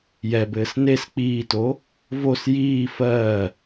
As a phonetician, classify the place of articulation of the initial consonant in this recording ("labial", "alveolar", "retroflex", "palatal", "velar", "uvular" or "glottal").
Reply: palatal